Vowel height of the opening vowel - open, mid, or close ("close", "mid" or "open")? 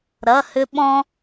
open